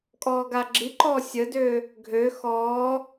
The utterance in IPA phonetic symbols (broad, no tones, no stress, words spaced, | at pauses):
kʼɔːɡaɡ͡ǁiǃɔː sʲədøː | ɡʱø xɔː